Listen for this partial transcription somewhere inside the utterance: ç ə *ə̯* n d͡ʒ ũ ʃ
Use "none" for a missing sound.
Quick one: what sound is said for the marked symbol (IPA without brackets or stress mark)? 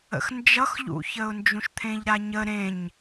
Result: ʊ̯